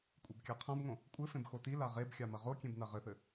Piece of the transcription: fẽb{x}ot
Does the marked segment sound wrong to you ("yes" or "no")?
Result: no